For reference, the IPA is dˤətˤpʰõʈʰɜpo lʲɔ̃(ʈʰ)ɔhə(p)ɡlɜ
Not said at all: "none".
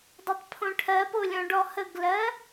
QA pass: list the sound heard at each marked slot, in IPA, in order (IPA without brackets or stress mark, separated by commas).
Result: ɖ, none